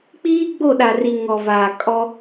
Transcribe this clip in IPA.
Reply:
k͡p iː˦ ɡ͡b o˦˨ ɗ a˨ r i˨ ŋ ɔ˨ v aː˨ kʼ ɔ˦

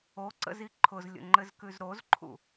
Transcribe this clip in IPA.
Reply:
o ǀ ə̰ z i ǃʰ ʊ z lʲ ə̰ ŋ͡ǃ ɘ z k ʉ z ɾ o z ǃʰ ṵ

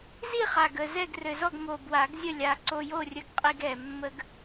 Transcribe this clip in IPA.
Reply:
z i˥˨ χ a˨˩ ɡ ə˨˩ z ɛ˥˨ ɡ r ɘ˨˩ z ɔ˥˨ ɡ m o˨˩ b w a˨˩˦ ɡ zʲ ə˥˨ lʲ a˨˩ ǀ o˧ j o˥˨ rʲ ə˧ ɡ qʼ i˧ ɡ ɛ˨˩ mː ə˧ ɡ

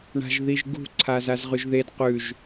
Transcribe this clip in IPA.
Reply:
ɳ a̤ ʒ ð i ʒ ɡ ṳ ǀʰ a z a z ʁ ʉ ʒ ð e d q ʉ ʒ

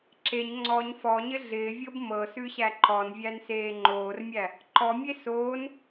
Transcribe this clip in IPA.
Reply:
ǁ e ɲ ŋ͡ǀ ɔ ɲ f ɔ ɲ ɪ ɮ ɪː vʲ ɤ b m ɤ s ʉ ɕ æ ǃ ɔ n vʲ æ n s eː ŋ͡ǃ oː r mʲ æ | ǃ ɔ mʲ e s oː n

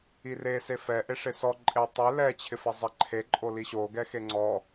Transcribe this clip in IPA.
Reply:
i r e s e f ɛ ʔ e ʂ ɪ s ɔ ǃʼ e tˤ e l ɛ t͡ɕʰ ɪ f ɛ zˤ ɛ ǃʰ e ǃʼ o l i ɕ o ɡ ɛ x e ŋ͡ǀ ɔ

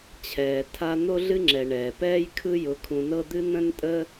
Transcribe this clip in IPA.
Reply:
t͡ɕʰ ɛː˩ tʰ a˧ n̪ o˥ ɮ ɨ˥ ŋ͡ǁ ɛ˩ ɳ ɛː˩ p ɛː˥ j kʰ ɯ˥ j ʊ˧ kʰ ũ˧ n ɤ˥ d̪ ɨ˥ n̪ ə̃˥ n tʼ ə˥

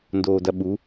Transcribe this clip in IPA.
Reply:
n d oː d ɐ ɓ u

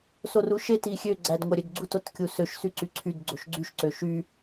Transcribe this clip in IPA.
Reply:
s o r u ʃ e t i xʲ ø ɡ͡ǀ æ d ŋʷ æ ɾʲ ø d ɡ͡ǀ u t o t kʲ u s ø ʃ s y ǀ y ǀʰ y d ɡ͡ǀ o ʃ ɡ͡ǀ y ʃ ǀ ø ʃ y

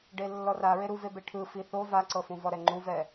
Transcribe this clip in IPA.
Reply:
ɖ e lː ɔ r a ɹ e ɾ u v e b e ʈʰ ɯ f i θ o v a ǀ ɤ f ũ v ɔ ɾ ɛ ŋ͡ǃ u v ɛ

